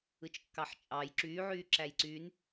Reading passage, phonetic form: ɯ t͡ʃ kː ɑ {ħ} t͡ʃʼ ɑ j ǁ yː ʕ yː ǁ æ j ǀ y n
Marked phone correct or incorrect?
correct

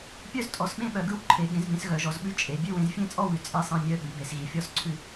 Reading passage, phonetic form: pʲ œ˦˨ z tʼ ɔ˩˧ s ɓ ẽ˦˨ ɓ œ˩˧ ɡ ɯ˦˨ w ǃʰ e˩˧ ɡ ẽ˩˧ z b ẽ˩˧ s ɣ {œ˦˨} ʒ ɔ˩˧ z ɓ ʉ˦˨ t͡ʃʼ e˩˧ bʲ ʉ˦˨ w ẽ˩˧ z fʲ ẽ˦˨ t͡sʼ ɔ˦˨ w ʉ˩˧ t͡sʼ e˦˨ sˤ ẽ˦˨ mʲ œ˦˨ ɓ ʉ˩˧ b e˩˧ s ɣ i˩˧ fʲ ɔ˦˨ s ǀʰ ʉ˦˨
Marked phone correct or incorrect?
incorrect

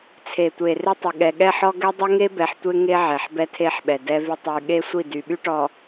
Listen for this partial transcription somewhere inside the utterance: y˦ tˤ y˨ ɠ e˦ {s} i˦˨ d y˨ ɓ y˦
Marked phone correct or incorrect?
incorrect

